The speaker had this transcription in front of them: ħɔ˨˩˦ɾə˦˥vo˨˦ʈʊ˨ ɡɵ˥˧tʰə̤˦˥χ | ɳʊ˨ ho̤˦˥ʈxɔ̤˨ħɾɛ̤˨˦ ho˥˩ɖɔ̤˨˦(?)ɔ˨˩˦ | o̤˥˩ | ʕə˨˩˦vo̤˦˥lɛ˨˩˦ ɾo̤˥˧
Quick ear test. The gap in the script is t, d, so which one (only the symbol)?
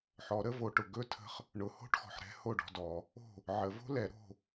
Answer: d